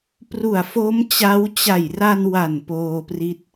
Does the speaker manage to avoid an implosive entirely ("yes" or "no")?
yes